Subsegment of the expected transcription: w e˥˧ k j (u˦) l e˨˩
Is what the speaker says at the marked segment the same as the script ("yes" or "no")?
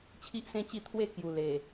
no